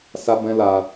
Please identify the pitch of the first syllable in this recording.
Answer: high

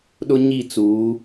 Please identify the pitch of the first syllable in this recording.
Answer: high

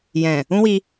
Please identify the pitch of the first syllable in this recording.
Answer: low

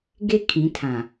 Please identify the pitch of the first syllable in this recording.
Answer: high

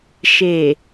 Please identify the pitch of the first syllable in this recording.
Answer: low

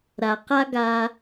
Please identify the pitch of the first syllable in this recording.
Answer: low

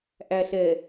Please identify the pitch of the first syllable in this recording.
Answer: low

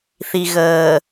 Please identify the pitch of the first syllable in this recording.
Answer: low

